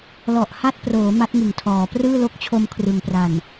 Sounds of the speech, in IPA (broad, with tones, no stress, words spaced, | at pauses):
lɔ˨˩ʔha˦˥t̚proː˩˦ ma˦˥t̚ŋɯ˨˩ŋtʰɔː˩˦ prɯː˥˩lo˥˩k̚ t͡ɕʰo˧mkʰrɯ˩˦ŋpra˨˩n